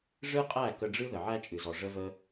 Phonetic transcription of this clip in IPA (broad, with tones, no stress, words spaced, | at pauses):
ʐɨ˦qʼæ˦˨ kə˧ɖ͡ʐɨ˦ ðə˨ʕæ˦t͡ʃʼɨ˨zɔ˨ ʐə˦və˦